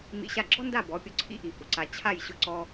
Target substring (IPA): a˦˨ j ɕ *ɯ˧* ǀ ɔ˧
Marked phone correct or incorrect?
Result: incorrect